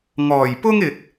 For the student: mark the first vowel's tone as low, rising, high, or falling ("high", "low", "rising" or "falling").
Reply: low